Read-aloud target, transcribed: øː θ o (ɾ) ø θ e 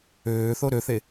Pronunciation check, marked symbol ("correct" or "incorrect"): correct